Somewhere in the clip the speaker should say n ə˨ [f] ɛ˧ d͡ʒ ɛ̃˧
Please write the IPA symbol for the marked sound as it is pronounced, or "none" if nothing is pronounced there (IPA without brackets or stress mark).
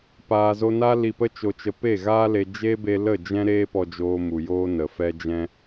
f